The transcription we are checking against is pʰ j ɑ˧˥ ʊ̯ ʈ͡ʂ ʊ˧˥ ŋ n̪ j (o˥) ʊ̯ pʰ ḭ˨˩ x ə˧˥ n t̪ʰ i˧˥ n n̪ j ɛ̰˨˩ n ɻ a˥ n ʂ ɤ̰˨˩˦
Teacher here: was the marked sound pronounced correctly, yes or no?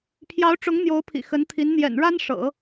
no